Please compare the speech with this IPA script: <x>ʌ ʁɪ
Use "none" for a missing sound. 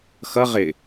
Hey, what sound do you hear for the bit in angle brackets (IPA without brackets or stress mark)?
x